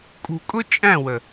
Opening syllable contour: low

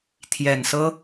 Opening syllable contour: low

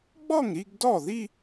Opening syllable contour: falling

